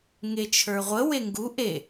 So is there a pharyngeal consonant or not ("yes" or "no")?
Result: no